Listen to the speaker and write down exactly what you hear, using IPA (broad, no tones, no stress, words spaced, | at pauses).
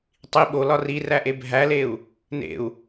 tˤi ɓolɒ riræʔe bʱæleu̯ | nḛu̯